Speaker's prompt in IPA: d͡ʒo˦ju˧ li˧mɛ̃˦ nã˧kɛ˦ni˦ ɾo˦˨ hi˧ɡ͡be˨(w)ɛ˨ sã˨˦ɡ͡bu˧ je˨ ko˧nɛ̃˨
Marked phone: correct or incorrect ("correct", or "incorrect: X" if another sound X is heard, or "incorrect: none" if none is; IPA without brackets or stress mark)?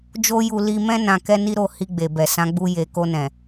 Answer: incorrect: b